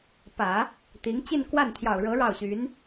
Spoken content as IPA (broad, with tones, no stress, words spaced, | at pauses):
pä˨˩˦ | t̪i˧˥ŋ t͡ɕi˥˧nkwa˥˩nt̪ʰjɑ˨˩ʊ̯ɻɤ˧˥ ɻɑ˥˩ʊ̯ɕy˧˥n